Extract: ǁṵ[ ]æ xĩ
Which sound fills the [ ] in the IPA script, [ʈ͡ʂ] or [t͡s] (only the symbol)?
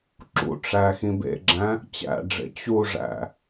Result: ʈ͡ʂ